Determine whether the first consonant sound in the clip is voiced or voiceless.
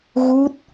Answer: voiced